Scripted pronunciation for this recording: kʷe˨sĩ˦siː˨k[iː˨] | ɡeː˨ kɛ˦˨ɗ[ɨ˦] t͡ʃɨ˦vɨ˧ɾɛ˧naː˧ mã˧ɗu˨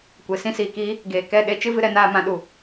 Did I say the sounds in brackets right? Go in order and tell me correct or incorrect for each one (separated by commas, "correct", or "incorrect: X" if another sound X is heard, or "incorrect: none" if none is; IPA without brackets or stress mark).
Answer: incorrect: iː˦, incorrect: e˦